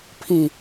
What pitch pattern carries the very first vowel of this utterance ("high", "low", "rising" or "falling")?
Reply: low